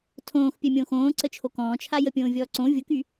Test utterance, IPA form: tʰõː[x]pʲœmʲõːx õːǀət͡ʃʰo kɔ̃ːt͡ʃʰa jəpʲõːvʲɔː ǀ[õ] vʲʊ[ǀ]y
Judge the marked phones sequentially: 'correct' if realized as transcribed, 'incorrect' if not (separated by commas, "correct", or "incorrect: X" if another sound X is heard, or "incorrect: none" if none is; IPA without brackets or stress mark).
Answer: correct, correct, incorrect: k